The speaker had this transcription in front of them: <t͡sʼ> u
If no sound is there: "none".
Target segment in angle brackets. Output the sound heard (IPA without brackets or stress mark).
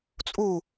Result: t͡sʼ